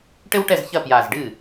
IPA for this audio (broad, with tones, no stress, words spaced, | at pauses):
ʈɘ˥wʈɛ˥˩zçɐ˥˩ pja˧˩zɖɨ˥˩